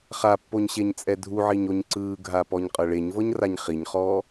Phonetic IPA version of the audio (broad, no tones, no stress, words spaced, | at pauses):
χapːoɲɕeɲ t͡sʼɛdʱuʕiɲoɲ ǀɯːɡʱa pɔɲqʼɤɭeɲvɤɲ raɲχiɲχɔː